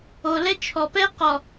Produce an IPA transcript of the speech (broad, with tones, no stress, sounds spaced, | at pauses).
o˨ l ɛ˦ t͡ʃʰ ɔ˨ p ɛ˦ q ɔ˨